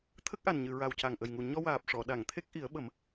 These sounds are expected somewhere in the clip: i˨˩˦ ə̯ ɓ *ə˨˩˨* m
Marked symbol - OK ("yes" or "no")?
no